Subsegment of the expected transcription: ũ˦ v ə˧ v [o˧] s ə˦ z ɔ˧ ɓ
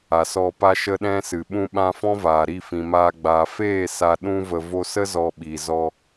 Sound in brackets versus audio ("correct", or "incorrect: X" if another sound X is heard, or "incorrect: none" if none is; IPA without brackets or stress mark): correct